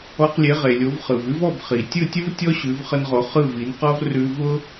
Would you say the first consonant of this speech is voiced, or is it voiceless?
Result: voiceless